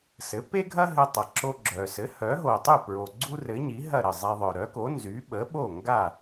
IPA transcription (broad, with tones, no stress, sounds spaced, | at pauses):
s ɘ˩˥ p e˥ ɡʱ ɐ˥ ɦ ɘ˧ tˤ ɐ˩ ǁ o˧ ɡ͡ǁ œ˩ s ɘ˩˥ h œ˩˥ ɦ o˩ tˤ y˥˩ p ɹ o˩ ɡ͡ǀ u˥ r ɘ˩˥ ɲ i˩˥ ɦ ɐ˥˩ ɾ ə˥˩ zˤ e˧ ðˤ œ˩ ɾ œ˩˥ k o˩˥ n z y˩˥ ɓ ə˩˥ ɓ o˥˩ ŋ ɡ a˥˩